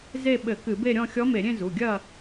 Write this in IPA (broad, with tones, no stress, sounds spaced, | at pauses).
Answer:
z e˥˧ ɓ ɘ˧˩˧ k ɨ˧˩˧ b e˥˧ ɾʲ ɔ̃˥˧ xʲ ɔ˧˥ m e˧˩˧ ɾʲ ẽ˥˧ z u˩˧˩ ɡʲ ɐ˥˧